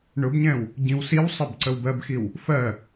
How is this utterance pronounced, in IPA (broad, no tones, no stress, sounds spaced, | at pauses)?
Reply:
ɳ ʊ b ɲ ɛ̃ w | ɟ ĩ w s i w sˤ ə b ǀ ə w b ɜ b x i w | f ɜ